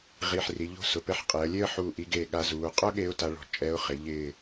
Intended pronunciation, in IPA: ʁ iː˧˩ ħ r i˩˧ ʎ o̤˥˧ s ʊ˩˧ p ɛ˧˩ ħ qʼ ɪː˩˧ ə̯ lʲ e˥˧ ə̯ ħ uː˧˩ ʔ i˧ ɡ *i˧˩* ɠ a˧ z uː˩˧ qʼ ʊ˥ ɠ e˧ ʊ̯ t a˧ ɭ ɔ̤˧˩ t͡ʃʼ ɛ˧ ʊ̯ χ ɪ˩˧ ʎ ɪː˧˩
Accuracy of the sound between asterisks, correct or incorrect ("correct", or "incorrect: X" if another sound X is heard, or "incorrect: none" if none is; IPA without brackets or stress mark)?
incorrect: e˧˩